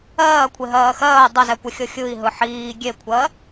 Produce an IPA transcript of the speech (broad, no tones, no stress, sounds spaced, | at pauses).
ɜː kʷʰ e ɦ ɜː x ɜː dˤ ʌ z ɛ kʷ ɛ xʲ ɤ xʲ ɯ i̯ ɦ ɯ ħ iː ɡʲ e kʷʰ ɜ